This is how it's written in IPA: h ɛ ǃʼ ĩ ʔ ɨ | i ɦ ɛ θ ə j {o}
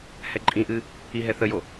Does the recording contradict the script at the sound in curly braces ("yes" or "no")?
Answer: no